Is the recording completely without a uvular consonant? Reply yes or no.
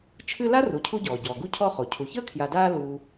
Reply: no